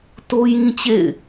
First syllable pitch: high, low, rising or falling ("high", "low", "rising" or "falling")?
high